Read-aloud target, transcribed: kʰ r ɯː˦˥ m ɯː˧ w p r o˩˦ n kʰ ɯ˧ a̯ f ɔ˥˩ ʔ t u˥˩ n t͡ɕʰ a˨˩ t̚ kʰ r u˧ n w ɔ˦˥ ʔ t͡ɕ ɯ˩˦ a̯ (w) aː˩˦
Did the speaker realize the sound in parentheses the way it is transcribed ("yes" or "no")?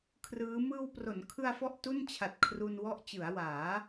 yes